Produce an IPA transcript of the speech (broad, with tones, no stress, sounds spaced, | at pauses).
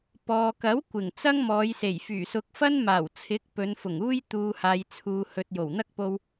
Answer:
p ɔː˨ k ɐ˨˥ w kʷ ɪ˨˩ ŋ t͡s ɐ˥ ŋ m ɔː˨˧ j s e˨˩ j f yː˨˩ s ʊ˨˥ k̚ f ɐ˥ n m aː˨˩ w t͡sʰ ɪ˨˥ k̚ p ɵ˨˧ n f ʊ˨˩ ŋ uː˥ j t̪ uː˧ h aː˨ j t͡sʰ uː˨ h ɵ˨ t̚ j o˨˩ w n̪ ɐ˥ k̚ p o˧ w